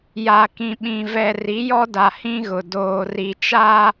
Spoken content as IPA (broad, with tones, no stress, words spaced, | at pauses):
ja˨kĩ˨ɓĩ˨ vɛ˨ri˨˦jɔ˦da˨ hĩ˦ɣʊ˨ doː˨ri˨t͡ʃa˦